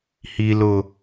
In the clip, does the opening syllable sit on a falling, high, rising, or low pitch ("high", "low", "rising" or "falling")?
high